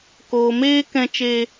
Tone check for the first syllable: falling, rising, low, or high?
low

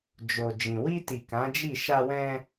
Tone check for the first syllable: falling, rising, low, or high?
low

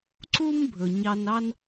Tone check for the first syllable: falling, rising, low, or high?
high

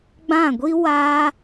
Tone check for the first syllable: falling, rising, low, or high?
falling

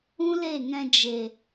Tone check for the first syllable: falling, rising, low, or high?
high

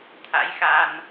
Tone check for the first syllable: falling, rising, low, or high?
rising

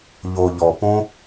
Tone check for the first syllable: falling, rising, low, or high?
low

